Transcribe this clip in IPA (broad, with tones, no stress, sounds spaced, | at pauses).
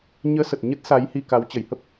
ɲ əː˨˦ s ə˨˩ t̚ ɲ ə˦˥ t̚ s a˨˦ j h i˧ k a˨˦ w t͡ɕ ə˧˩ j h ə˦˥ p̚